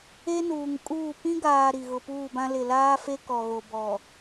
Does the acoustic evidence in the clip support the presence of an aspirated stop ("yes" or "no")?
no